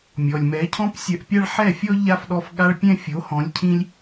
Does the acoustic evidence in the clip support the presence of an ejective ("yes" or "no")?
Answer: no